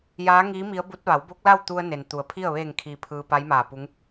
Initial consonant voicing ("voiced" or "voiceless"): voiced